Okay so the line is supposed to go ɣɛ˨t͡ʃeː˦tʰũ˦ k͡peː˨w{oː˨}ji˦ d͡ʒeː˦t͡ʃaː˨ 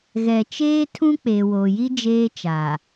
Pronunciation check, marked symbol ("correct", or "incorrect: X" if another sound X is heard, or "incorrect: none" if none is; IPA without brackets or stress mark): correct